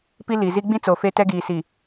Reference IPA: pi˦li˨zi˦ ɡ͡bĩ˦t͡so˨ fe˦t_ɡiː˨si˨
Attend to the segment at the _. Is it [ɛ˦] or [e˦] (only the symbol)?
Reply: ɛ˦